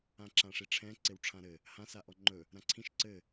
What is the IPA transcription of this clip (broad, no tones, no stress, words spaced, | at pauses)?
ãǁãʂiʈ͡ʂʰɛ̃ ǀewʈ͡ʂʰãɾɘ | hã saʔɔŋ͡ǃɵ | ɾãǀʰĩʃ ǀɘ